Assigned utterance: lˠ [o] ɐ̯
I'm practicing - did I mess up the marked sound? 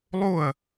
no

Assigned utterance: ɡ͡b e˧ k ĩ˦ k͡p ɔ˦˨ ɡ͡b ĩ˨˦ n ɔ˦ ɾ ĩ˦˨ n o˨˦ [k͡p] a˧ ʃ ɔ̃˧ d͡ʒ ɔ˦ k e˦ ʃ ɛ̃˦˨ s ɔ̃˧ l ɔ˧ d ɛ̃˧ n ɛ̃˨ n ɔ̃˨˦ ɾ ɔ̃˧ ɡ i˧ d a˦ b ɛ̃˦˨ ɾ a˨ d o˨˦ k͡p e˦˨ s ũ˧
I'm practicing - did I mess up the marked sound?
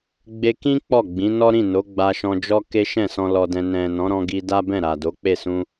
yes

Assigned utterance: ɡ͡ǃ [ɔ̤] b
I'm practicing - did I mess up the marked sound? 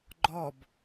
yes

